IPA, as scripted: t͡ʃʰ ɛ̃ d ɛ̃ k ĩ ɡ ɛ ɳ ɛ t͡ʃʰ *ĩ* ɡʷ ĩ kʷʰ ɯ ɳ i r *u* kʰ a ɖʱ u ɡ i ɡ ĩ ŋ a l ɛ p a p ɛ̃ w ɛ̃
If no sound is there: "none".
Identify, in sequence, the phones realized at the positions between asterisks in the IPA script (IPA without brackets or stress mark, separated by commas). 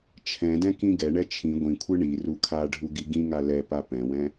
ĩ, u